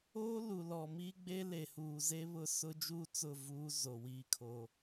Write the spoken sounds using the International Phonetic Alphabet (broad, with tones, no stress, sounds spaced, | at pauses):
oː˦ l u˨ l ɔ˨ m iː˦ ɡ͡b e˦ l e˨ h uː˨ z e˦ β ʊ˦ s ʊ˦ d͡ʒ uː˦ t͡s ʊ˦˨ v uː˦ z o˨ w iː˦ kʰ oː˦